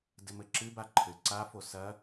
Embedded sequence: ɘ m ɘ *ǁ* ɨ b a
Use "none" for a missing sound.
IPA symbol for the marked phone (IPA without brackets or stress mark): ǁ